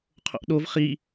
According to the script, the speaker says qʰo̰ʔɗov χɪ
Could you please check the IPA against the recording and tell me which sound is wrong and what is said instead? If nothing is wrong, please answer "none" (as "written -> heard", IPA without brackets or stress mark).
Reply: ɪ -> i